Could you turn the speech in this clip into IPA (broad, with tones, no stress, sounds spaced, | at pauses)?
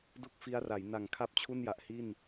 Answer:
d u˥˩ k̚ f i˦˥ a̯ r a˩˦ j n a˨˩ ŋ kʰ a˥˩ p̚ t͡ɕʰ u˥˩ n j a˨˩ ʔ h i˥˩ n